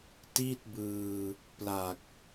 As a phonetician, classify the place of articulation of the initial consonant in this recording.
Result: alveolar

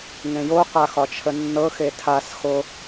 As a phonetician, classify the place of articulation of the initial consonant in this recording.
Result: velar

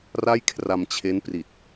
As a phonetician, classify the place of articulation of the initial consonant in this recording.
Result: alveolar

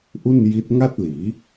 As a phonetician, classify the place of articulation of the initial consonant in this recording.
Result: glottal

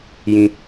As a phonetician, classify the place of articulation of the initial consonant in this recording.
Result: palatal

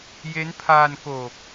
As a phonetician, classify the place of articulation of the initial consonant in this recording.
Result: palatal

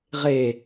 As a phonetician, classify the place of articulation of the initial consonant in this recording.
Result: uvular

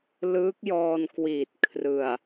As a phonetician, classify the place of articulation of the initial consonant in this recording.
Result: alveolar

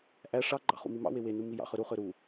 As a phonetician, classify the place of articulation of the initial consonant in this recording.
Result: glottal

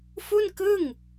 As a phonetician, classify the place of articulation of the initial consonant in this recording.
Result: labial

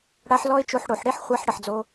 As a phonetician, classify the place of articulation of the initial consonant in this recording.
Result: retroflex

